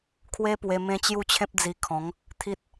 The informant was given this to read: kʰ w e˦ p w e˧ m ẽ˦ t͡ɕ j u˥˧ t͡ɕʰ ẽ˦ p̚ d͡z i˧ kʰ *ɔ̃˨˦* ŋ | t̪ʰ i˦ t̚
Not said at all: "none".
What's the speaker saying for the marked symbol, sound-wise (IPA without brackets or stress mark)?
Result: ɔ̃˨˦